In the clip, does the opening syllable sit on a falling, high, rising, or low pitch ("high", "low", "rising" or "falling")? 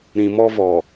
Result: low